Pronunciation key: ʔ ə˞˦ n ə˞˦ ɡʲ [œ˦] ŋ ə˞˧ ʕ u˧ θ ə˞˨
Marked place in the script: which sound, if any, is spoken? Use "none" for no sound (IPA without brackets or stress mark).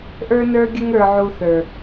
ə˦